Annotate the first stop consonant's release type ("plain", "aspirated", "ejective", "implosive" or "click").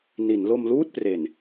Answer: plain